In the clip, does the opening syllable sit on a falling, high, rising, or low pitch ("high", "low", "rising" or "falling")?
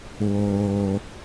low